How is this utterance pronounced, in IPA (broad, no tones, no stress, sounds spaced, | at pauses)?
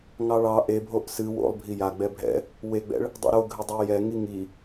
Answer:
ŋ ɑ ɭ ɑ ʔ e bʱ o ʔ s ɨ w o̰ lˠ bʱ i j a ɡ͡b ɛ bʱ ɛ̰ | w e ɡ͡b ɛ̰ ɭ | dˤ ṵ ɾ o ɡʱ ɪ dˤ o j ɛ ŋ i ŋ i